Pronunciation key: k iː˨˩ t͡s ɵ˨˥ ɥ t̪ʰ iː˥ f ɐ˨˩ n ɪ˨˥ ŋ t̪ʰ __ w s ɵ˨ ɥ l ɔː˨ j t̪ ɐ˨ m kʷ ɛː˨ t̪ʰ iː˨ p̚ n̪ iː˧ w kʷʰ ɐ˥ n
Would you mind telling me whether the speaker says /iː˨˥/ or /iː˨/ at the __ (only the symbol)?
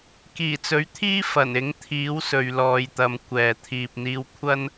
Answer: iː˨˥